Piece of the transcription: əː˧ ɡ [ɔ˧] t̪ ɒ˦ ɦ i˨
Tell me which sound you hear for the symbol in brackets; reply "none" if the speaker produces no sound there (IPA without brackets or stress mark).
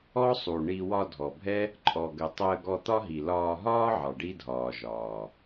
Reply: ɔ˧